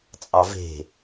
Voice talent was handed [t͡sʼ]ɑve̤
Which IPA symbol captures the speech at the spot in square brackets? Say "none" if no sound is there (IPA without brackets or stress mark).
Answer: t͡sʼ